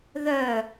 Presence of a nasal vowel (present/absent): absent